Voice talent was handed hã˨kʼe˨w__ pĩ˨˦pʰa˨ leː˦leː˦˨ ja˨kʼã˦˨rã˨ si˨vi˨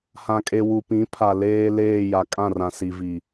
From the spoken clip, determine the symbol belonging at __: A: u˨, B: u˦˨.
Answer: A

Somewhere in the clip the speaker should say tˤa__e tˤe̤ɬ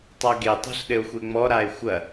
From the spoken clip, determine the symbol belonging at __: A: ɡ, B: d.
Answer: A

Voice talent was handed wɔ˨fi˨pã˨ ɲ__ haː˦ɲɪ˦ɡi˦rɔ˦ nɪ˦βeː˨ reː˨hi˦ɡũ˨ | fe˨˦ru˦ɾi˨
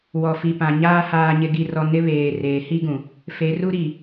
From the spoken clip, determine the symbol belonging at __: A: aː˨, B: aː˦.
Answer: B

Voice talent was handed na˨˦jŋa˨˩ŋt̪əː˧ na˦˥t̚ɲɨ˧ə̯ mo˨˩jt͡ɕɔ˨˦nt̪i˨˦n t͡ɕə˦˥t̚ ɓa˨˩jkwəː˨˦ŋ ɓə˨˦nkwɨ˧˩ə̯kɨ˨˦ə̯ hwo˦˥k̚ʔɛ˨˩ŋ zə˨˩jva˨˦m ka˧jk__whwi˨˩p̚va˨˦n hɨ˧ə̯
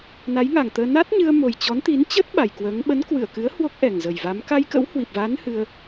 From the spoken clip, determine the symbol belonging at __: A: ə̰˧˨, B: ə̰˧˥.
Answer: B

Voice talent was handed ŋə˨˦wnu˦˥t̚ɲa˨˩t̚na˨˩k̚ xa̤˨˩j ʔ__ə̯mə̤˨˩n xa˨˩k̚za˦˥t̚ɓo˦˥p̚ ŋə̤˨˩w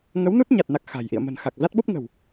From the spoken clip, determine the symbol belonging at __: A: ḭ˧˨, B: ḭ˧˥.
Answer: A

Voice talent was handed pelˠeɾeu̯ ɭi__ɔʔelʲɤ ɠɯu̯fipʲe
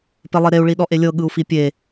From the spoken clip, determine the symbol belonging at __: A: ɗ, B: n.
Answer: A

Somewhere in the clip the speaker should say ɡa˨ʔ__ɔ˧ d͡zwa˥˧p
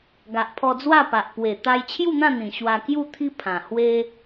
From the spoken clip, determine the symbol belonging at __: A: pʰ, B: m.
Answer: A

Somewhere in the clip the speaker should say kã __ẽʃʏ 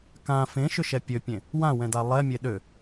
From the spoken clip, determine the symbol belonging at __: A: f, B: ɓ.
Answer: A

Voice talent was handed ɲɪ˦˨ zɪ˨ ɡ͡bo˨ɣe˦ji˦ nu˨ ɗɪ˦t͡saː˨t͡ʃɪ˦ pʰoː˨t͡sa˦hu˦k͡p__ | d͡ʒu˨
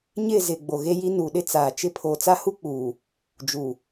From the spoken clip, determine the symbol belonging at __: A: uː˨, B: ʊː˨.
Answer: A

